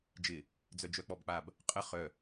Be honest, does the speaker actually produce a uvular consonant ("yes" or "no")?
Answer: yes